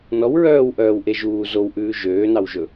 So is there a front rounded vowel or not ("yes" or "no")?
yes